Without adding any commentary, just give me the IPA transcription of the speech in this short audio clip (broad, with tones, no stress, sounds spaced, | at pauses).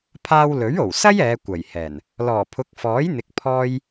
pʰ aː˧ w l ɵ˨˥ ɥ o˨˩ w s ɐ˥ j ɛː˨˧ kʷ ɐ˨˩ j h ɛː˨˩ n | l ɔː˨˩ pʰ ʊ˨˥ k̚ f ɔː˨˥ j n̪ ɪ˨˥ k̚ pʰ ɔː˥ j